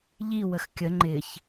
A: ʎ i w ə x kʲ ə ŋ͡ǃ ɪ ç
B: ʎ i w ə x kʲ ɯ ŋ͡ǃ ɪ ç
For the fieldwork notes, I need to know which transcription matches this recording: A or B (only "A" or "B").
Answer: A